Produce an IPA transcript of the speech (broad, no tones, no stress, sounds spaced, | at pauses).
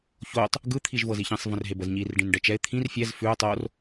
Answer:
ç o tˤ | ɡ ɯ t̪ʰ i ʒ v ɤ z i ç ĩ sˤ v ə̃ r ɦ e b ə z ɲ i r ɖ ĩ n ɖ ɛ t͡ʃ ɛ ɪ̯ t̪ʰ ĩ r fʲ ɛ z f ʉ ʊ̯ tˤ o r